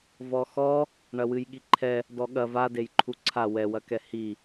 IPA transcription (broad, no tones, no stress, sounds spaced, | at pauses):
v ɔ x ɔ | ɳ ɐ w ɨ j ɠ i ǃʰ ɛ | d ɔ ɠ ɐ v a d e j ǃʰ u ǀʰ a w ɛ w ɐ k ɛ h i